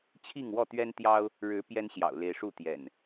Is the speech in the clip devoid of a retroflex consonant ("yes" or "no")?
no